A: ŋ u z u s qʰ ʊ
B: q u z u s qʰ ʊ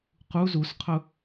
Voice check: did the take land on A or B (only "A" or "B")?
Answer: B